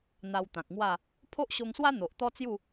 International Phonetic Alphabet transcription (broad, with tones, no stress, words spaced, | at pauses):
n̪a˧wt̪ã˨k̚ŋwa˥˧ | pʰo˦ʔɕo˧ŋswa˦ n̪o˨ʔt̪ɔ˦t͡sju˥˧